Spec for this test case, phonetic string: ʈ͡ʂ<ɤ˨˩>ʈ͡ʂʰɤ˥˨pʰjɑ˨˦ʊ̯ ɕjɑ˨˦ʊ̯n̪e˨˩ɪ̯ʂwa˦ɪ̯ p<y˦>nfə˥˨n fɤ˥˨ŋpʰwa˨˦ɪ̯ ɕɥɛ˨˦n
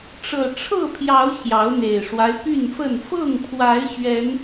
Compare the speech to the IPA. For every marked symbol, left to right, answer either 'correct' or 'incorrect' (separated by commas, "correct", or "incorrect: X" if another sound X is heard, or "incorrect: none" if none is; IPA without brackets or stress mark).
correct, incorrect: y˥˨